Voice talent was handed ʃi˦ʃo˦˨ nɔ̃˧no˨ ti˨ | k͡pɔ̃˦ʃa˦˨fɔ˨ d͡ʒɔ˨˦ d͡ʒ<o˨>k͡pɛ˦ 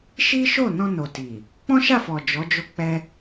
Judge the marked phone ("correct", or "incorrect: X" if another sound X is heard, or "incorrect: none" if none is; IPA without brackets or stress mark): incorrect: o˦